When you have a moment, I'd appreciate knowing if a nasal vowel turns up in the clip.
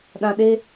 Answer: yes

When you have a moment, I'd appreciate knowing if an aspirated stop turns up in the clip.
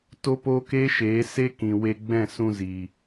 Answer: no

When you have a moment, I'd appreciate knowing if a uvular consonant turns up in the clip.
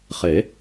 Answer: yes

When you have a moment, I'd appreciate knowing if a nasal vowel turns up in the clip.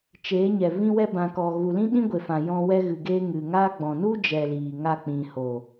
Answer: yes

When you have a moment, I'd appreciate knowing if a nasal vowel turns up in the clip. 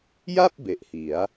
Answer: no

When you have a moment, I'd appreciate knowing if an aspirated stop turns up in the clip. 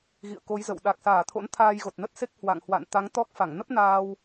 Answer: yes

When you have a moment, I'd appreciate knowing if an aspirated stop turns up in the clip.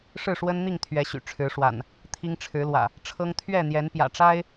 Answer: yes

